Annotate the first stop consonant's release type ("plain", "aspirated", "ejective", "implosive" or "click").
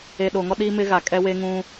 implosive